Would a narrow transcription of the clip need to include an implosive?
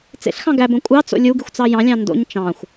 no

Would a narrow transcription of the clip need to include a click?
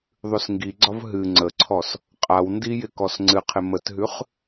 yes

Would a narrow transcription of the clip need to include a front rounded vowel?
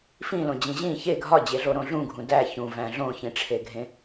no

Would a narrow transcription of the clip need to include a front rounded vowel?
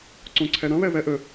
yes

